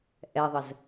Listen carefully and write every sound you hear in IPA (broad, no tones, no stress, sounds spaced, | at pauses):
ʔ ɛ ðˤ ə z